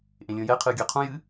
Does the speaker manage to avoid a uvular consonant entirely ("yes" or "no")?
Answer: no